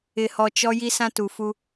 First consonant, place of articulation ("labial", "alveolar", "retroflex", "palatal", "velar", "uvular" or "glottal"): glottal